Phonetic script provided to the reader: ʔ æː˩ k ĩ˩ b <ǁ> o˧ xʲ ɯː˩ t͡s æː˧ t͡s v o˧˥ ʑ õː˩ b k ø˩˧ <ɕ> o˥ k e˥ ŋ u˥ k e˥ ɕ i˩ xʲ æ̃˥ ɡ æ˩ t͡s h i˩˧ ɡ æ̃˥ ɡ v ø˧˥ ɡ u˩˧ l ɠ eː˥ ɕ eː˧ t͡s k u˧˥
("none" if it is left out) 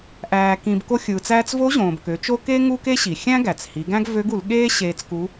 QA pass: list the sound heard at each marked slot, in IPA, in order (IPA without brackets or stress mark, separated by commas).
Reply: k, t͡ʃ